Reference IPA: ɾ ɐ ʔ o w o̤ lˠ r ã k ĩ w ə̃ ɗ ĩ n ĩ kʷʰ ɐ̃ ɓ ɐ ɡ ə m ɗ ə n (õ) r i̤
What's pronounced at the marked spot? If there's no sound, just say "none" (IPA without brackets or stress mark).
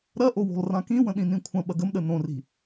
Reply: õ